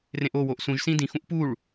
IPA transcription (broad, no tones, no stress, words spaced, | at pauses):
rẽʔo woʔsũʒ sĩdĩ xũʔpuɭ